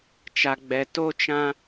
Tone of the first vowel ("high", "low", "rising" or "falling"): low